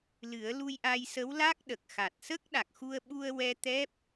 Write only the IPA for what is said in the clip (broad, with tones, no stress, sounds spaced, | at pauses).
l ɨ˨˩˦ ə̯ l u˧ j ʔ a˧ j s ə˧˥ w l a˦˥ k̚ ɗ ə˨˩ k̚ x a˨˩ t̚ s ə˦˥ k̚ ɗ a˨˩ k̚ x u˧ ə̯ ɓ u˧ ə̯ w ɛ˧ t̪ ɛ˦˥ p̚